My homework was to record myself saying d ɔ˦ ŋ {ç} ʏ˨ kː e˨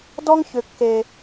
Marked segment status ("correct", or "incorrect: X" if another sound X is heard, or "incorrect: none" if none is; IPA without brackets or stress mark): correct